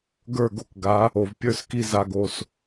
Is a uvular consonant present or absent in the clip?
absent